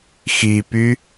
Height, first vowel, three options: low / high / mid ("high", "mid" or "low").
high